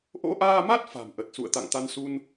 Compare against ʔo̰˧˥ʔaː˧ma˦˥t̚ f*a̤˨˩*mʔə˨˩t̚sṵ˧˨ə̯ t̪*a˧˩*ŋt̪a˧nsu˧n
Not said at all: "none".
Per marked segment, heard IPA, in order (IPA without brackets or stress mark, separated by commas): a̤˨˩, a̰˧˨